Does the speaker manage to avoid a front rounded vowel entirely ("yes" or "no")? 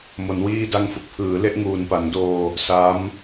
yes